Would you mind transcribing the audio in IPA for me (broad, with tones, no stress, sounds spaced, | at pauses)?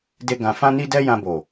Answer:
d e˦ ɡ ã˧ f ã˦ n i˦ d ɛ˦ j ã˧ b o˨